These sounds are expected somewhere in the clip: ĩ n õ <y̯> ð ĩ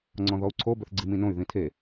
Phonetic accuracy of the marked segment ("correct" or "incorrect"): correct